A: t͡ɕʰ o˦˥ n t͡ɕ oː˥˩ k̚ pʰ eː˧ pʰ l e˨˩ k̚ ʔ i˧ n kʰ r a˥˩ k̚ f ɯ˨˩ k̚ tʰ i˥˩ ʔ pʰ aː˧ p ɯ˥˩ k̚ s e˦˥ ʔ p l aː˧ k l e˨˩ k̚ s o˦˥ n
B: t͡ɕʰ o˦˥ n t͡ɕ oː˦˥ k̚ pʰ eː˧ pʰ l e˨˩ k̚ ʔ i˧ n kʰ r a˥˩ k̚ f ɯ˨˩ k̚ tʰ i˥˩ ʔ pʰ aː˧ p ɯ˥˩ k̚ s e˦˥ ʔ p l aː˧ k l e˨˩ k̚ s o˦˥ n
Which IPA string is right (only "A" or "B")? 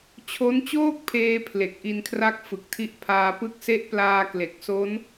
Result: A